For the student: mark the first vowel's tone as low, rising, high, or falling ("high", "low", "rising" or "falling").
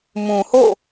low